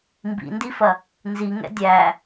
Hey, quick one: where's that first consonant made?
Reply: lips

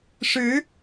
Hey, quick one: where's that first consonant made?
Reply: retroflex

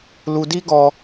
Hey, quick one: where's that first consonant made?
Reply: tongue tip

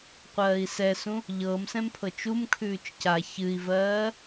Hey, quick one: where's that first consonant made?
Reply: uvula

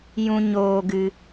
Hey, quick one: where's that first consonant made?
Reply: palate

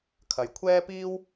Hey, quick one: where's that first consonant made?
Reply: velum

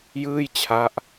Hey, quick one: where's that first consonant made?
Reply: palate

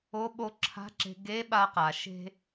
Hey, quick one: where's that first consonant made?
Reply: lips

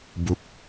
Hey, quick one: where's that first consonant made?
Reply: lips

